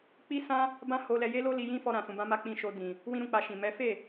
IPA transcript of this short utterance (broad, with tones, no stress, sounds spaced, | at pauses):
k͡p i˦ s ã˦ | b ã˦ h o˧ l ɛ˧ j e˦ l o˦ l i˧ j ĩ˦ f ɔ˧ ɾ ã˨ s ũ˨ b ã˧ m a˦ k͡p ĩ˧ ʃ o˧ d ĩ˨ | w ĩ˦ ɾ ũ˦˨ k͡p a˧ ʃ ĩ˨ m ɛ˨˦ f e˦˨